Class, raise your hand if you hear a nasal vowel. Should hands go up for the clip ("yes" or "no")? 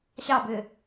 no